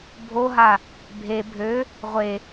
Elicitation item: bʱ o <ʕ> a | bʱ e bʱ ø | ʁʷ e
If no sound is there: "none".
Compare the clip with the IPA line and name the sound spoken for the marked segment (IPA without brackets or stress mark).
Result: ɦ